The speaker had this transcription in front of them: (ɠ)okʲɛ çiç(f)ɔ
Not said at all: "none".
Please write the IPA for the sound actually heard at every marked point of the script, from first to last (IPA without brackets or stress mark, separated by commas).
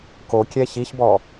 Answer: k, b